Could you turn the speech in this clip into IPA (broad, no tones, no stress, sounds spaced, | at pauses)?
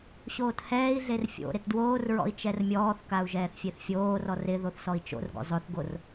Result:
ɕ oː t h ɛː i̯ ɮ e r fʲ o̰ ɾ ɪ t d w oː r ɹ ɔ̰ i̯ t͡ʃ ɛ r mʲ ɔː θ k a u̯ ʒ ɛː θ fʲ e θ fʲ oː r ɔ r ɪ ð o θ s ɔ i̯ t͡ʃ o̰ r ɡ o̰ zˤ ʊ θ ɡ o r